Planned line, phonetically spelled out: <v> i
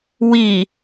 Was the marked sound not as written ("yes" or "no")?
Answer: yes